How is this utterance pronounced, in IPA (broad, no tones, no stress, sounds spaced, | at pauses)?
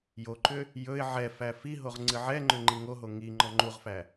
j o ǃ ʏ | j ɵ ɪ̯ ʕ ɛ f æ f i ɦ o ʁ ŋ͡ǀ ɨ ʕ ɛ ŋ͡ǃ ʏ ŋ͡ǃ i ŋ o ɦ o ŋ i ŋ͡ǃ ɔ ŋ͡ǃ u ʁ f æ